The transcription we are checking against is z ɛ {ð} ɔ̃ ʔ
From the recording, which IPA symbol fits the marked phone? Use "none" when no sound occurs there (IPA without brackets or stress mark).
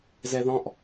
ð